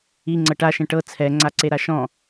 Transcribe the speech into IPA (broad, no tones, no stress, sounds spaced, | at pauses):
i ŋ͡ǀ ɤ ʈ a ʃ ɛ̃ ʈ ɤ t͡sʰ ɛ ŋ͡ǀ a ǀ e ɾ a ʃ ɔ̃